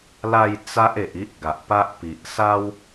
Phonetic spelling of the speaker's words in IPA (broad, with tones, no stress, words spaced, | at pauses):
la˥˧j t͡sa˦ʔe˨ʔ i˦ʔɡa˨ʔpa˦ʔpi˨ʔ sa˦w